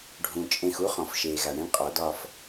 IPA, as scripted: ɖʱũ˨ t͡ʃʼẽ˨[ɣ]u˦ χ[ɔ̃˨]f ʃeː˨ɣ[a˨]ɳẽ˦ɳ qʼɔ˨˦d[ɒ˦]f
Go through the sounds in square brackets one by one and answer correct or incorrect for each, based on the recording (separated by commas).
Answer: incorrect, correct, correct, correct